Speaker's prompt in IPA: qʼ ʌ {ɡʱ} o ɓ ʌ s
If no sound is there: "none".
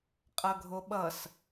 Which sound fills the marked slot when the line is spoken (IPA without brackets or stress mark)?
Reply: ɡʱ